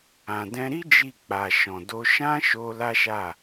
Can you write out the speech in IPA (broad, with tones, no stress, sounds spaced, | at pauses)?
ã˨ d ɛ̃˧ ɾ i˦ d͡ʒ i˦˨ k͡p a˨ ʃ ɔ̃˨ d o˧ ʃ ã˦ ʃ o˧ l a˦ ʃ a˦˨